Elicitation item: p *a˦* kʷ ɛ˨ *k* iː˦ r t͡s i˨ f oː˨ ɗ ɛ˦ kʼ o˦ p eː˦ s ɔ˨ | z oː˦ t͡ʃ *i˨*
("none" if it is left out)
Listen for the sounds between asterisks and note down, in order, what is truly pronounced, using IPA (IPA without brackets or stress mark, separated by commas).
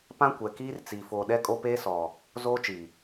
ã˦, k, i˨